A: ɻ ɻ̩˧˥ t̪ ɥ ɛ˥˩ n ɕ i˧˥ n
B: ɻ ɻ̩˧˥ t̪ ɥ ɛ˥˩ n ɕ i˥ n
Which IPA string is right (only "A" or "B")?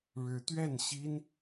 B